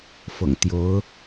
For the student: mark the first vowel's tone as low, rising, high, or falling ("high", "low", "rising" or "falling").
low